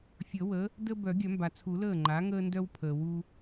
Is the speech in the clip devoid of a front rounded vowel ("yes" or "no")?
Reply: no